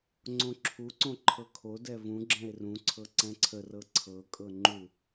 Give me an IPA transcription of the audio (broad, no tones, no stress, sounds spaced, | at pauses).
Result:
ŋ͡ǀ õ ǁʰ u ǀ õ ǃʰ ɤ kʰ o d ɛ v ũ ɡ͡ǁ ɛ̃ e̯ r ũ ǀʰ ɤ ǀ ɛ̃ ǀʰ ə r ɤ ǀʰ ɤ kʼ ɤ ŋ͡ǃ u